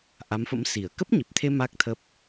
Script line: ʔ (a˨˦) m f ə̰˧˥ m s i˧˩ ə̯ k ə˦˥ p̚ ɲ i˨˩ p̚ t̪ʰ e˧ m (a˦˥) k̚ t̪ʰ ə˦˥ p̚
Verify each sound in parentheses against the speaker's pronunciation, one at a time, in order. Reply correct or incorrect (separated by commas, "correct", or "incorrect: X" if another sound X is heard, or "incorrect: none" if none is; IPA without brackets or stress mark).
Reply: correct, correct